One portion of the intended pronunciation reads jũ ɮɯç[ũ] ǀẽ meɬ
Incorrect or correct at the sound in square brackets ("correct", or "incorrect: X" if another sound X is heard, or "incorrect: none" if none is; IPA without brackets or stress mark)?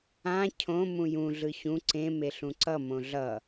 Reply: correct